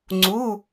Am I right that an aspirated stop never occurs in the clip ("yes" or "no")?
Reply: yes